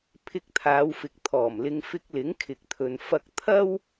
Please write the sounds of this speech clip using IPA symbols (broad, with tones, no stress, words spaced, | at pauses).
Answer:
pʰɪ˧k̚t̪ʰaː˨˧wfɪ˨k̚ t̪ʰɔː˨˩mlɪ˧ŋ fɪ˥k̚ lɪ˨˥ŋkʰɪ˨k̚t̪ʰɵ˨n fɐ˥k̚ t̪ʰɐ˥w